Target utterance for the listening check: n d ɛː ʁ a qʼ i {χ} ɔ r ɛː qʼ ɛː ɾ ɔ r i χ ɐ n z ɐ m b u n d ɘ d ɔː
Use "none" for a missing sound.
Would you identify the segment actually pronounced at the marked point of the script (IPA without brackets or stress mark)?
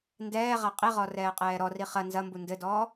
ʁ